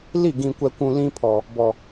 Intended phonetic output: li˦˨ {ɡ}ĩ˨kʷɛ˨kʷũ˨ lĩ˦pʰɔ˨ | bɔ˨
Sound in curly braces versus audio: correct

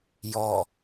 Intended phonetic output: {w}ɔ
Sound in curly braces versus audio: incorrect: j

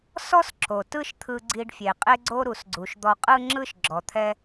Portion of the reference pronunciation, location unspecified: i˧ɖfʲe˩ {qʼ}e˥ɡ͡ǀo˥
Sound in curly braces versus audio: correct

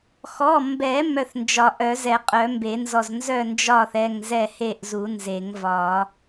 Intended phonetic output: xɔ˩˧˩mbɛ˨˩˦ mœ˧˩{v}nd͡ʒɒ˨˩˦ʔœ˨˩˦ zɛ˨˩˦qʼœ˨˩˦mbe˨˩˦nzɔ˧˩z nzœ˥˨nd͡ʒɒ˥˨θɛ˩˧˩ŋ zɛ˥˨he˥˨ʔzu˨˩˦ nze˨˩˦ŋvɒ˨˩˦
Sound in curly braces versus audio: incorrect: θ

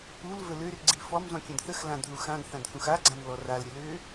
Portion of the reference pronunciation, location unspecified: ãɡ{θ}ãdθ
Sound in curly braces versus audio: correct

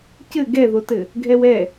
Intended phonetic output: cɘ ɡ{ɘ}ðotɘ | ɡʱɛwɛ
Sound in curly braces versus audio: incorrect: ɛ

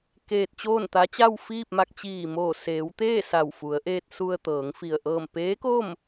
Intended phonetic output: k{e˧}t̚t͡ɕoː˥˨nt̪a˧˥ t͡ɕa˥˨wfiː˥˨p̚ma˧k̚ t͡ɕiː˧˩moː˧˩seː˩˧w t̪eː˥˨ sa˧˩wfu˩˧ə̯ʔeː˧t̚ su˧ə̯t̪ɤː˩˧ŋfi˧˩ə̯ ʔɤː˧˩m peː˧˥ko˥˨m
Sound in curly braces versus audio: incorrect: eː˧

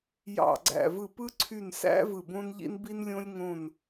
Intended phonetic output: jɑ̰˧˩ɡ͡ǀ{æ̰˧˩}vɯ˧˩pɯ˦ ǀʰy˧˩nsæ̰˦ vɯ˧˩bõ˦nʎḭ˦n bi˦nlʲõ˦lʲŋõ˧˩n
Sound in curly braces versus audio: correct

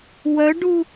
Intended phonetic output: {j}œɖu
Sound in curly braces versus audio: incorrect: w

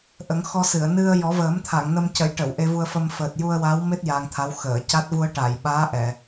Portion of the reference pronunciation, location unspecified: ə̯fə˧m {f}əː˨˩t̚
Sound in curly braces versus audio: correct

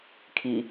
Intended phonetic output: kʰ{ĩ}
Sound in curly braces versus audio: incorrect: i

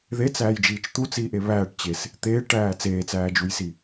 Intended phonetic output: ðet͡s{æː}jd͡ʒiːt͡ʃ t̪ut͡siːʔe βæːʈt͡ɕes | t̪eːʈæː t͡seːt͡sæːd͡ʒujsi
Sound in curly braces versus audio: correct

